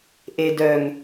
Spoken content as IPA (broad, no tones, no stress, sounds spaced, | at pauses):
ʔ e d œ ŋ